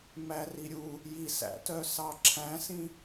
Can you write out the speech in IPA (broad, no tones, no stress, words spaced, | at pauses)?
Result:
mæriɾʲu | jisæ̰tœsɑ ǁʰæ̃sĩ